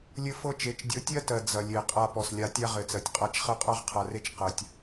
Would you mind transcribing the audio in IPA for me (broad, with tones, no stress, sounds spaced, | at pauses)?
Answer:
lʲ ɘ˦ f ɤ˦ t͡ʃ e˨˦ t͡ʃ dʲ ɤ˨˦ tʲ ɜ˦ t ɜ˨ d͡z ɐ˨ lʲ e˨ qʼ a˦ p ɔ˨ s lʲ a˦ tʲ a˦ ʁ ɘ˨ t͡s ɜ˨ tʲ qʼ a˦ t͡ʃ χ ɜ˦ qʼ a˦ ʁ qʰ a˨ r e˦ t͡ʃ q ɜ˨ tʲ